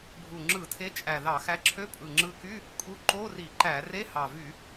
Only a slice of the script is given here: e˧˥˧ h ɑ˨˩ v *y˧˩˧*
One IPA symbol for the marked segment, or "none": y˧˩˧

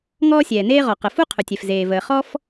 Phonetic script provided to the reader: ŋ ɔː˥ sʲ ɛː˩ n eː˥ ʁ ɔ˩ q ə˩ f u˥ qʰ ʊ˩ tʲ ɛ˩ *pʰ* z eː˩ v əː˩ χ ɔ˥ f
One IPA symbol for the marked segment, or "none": f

